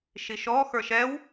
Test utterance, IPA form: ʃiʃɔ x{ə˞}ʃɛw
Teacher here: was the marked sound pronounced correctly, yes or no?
yes